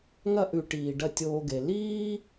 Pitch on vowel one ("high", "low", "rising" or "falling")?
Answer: high